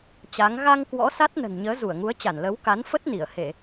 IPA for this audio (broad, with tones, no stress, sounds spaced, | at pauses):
t͡ɕ a˨˦ ŋ ɣ a˧ ŋ k w ɔ̰˧˥ s a˦˥ t̚ n ə̤˨˩ n ɲ əː˨˦ z u˧˩ ə̯ ŋ u˨˦ ə̯ t͡ɕ a˧˩ n l ə˨˦ w k a˨˦ n f ə˦˥ t̚ n i˧˩ ə̯ h e˧˩˨